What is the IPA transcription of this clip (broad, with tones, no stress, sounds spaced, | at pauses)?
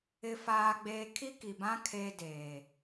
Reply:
ɪ˦ f aː˦ ɡ͡b eː˦ kʰ i˦ k i˨ b ã˦ kʰ eː˦ d eː˨